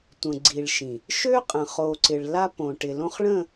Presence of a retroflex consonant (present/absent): present